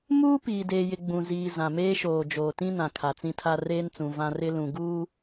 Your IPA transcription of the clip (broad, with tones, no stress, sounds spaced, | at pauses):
m uː˦ p iː˨ d eː˨ j ɪ˨ ɡ͡b ũ˨ z iː˨ z ã˨ m eː˦ ʃ oː˨ d͡ʒ oː˨ t ĩ˦ n ã˨ kʰ a˨ t͡s ĩ˦ tʰ a˦ r eː˦ n t͡s ũ˨ v ã˦ r ɪ˦ l ũ˨ ɡ uː˦